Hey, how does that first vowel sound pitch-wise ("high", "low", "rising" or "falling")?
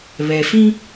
low